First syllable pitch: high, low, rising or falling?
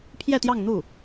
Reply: falling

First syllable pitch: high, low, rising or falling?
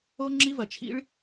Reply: high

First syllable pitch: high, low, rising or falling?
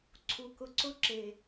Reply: low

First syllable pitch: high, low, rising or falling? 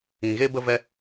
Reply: low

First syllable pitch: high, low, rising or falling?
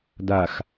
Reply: low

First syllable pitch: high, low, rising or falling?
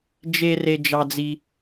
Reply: high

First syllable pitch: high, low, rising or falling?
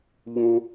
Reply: high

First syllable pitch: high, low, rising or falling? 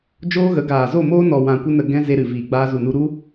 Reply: high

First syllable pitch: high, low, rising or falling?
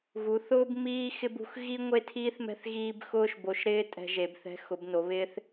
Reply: rising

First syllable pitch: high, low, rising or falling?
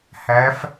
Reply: rising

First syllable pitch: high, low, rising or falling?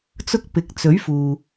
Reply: high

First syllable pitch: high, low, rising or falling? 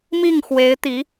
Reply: falling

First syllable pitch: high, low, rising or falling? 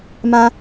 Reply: high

